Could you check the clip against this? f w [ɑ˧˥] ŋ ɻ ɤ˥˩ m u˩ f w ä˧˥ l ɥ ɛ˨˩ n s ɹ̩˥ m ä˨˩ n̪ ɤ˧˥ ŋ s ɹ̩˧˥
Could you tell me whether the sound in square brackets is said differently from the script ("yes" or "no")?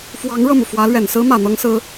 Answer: no